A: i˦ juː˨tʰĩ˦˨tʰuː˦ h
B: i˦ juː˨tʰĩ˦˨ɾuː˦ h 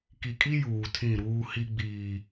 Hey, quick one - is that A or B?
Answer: B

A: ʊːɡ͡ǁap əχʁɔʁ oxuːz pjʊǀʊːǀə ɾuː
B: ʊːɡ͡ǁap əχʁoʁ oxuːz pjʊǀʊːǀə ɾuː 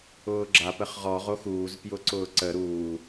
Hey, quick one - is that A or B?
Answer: A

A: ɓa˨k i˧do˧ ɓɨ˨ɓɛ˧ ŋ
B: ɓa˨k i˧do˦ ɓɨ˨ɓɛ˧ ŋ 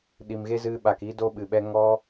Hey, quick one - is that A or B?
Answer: A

